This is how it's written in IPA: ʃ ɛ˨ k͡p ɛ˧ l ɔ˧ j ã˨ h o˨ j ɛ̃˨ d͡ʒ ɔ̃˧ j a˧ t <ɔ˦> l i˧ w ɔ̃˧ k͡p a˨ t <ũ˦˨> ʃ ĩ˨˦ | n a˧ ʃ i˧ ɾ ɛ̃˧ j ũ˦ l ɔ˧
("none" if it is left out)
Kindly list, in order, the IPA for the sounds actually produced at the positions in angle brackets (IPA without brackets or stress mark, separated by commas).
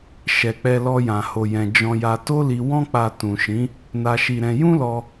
o˦, ũ˨